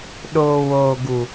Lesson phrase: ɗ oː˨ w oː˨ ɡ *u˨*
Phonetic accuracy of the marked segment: correct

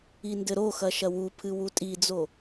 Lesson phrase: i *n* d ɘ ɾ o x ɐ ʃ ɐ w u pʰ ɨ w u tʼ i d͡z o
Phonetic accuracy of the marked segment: correct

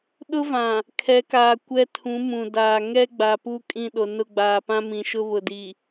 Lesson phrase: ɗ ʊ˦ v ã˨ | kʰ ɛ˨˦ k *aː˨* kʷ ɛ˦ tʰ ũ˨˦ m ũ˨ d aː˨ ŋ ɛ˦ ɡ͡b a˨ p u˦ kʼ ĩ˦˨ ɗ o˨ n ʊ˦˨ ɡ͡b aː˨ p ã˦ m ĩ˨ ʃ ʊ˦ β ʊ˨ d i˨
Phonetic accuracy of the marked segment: correct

